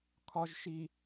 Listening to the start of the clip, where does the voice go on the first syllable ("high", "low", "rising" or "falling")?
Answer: low